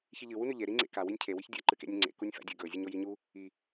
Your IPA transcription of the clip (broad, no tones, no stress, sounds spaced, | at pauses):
ç i ʎ ɨ w u n ʉ ʎ e ɾ i ŋ͡ǀ ḛ k a w i nʲ cʰ e w i ç dʲ ɐ ǃ ɨ k ḛ nʲ ʉ ŋ͡ǀ ḛ k u nʲ f a̰ dʲ ɵ ɡ ɵ zʲ ɨ ɲ o j i ɲ u | i